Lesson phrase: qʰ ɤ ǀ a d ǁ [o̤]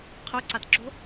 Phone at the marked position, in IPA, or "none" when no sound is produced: o̤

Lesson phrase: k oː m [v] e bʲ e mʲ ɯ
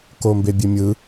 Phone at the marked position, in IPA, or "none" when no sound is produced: b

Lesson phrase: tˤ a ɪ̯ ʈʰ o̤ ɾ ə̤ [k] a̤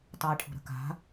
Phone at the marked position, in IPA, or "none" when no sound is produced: k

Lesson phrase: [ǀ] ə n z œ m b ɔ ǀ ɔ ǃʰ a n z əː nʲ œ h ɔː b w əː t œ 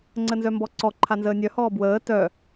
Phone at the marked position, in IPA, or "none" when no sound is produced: ŋ͡ǀ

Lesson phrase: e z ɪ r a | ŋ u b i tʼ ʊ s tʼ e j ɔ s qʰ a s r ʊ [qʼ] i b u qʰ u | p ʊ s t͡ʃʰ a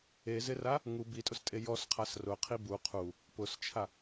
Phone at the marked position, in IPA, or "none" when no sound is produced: qʰ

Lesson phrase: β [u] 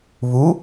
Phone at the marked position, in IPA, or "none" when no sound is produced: u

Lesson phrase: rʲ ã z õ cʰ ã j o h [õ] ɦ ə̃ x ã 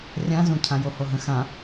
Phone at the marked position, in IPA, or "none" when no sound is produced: o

